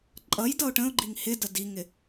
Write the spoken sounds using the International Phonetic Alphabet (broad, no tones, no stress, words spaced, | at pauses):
ǃʼʌj dʌʊ̯ʈə̃ʊ̯ɡ͡ǃiŋ hɪdə diŋɪ